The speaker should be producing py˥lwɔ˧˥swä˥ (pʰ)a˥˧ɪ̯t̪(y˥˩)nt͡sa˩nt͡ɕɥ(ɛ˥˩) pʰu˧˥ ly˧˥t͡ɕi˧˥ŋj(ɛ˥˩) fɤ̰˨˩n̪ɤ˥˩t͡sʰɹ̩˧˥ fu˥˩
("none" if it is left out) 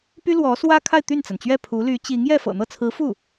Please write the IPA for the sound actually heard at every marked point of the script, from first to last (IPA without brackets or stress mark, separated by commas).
kʰ, y˥˩, ɛ˥˩, ɛ˥˩